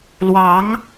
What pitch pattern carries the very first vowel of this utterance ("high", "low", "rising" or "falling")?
rising